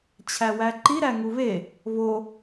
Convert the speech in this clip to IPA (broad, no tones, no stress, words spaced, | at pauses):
t͡ɕʰæwæǃi ɾæŋuβe | βo